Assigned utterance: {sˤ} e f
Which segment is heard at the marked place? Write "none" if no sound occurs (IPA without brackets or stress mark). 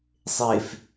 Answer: sˤ